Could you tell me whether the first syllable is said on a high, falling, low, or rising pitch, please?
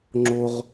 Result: high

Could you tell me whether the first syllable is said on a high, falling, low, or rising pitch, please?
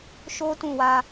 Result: high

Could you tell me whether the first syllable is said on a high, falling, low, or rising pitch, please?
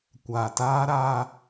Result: low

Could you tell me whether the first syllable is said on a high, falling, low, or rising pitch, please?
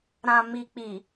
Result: low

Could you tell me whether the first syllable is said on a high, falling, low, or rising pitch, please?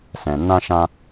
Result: low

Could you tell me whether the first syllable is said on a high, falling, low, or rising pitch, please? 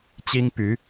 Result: high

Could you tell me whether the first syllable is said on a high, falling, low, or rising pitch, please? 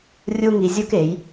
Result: high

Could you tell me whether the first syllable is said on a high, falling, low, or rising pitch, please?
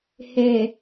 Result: low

